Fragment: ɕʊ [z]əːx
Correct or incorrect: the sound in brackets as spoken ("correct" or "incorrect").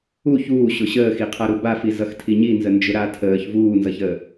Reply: incorrect